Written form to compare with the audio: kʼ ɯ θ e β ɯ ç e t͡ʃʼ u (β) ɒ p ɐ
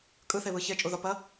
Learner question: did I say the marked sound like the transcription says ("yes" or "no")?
no